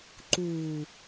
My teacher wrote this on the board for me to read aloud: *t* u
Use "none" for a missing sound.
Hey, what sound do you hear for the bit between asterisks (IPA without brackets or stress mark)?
ǃ